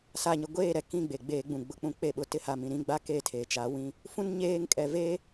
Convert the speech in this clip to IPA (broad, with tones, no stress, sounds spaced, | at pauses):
s a˨ ɲ ɪ˨ ɡʷ eː˦˨ ɾ ɛ˨ k ĩ˦˨ ɡ͡b e˨ ɡ͡b eː˦ ɡ͡b ũ˨ ɡ͡b ʊ˨ k͡p ũ˦ k͡p e˦˨ ɓ ʊ˨ t ɪ˦ h a˨ m ĩ˨ ɾ ĩ˦ ɡ͡b a˦ k e˦˨ tʰ e˨ t͡ʃ a˨˦ w ĩ˦ | f ũ˦ n ɲ eː˦ ŋ kʼ ɛ˨ v e˦